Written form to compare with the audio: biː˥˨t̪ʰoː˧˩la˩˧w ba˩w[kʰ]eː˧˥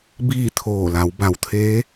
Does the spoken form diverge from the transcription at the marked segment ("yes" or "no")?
yes